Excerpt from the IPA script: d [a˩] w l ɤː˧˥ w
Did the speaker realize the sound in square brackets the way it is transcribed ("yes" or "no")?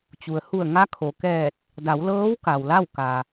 no